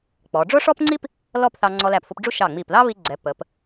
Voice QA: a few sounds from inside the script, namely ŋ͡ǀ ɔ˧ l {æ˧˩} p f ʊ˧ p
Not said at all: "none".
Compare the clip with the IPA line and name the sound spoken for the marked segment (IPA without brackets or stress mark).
æ˧˩